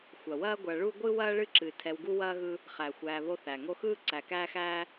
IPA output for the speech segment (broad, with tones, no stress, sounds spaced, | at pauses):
xʷ ɐ˩ w ɐː˦ ɡʷ ɐ˨ ɭ u˥ ɡʷ ɨ˥ w ɐː˥ ɭ ɨ˥ ǁ ɨ˩ tʰ ɛ˨ w ɡ u˦ w ɐː˥ ɣ ɯ˦ | χ æ˩ xʷ æː˨ β o˦ θ æ˩ ŋ o˦ x ɯː˥ ǀ æ˨ k æː˥ x æː˥